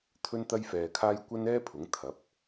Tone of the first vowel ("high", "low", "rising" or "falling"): high